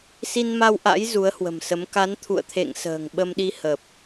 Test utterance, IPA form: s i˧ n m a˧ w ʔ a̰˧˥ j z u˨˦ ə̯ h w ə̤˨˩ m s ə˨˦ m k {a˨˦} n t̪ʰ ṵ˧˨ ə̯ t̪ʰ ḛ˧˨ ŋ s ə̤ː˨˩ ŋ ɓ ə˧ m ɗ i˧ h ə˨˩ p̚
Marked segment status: correct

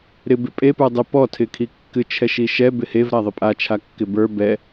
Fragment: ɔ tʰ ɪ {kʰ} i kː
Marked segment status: correct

